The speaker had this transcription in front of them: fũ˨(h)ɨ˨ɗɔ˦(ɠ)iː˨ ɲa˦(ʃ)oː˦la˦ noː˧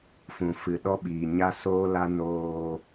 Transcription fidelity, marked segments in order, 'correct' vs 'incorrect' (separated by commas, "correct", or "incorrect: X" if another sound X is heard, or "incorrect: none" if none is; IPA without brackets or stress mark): incorrect: f, incorrect: ɓ, incorrect: s